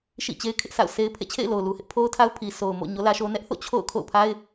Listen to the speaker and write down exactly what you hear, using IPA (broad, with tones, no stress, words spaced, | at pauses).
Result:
ʃḭ˦˨t͡ɕe˦ɪ̯ kʰɪ˦ʔsʰa̰˦˨ʊ̯ se˦ɪ̯pʰḛ˦˨ t͡ɕʰḛ˦˨ɪ̯lo˨ʊ̯lu˨hɪ˦ʔ pʰo˦ʊ̯tʰa˦ʊ̯ pʰi˨so˨ʊ̯mo̰˦˨ ɲo˦lä˦ʃo˦ nɛ˦ʔθo̰˦˨ t͡ɕʰo̰˦˨ʊ̯ kʰo̰˦˨ʊ̯pʰa˦ɪ̯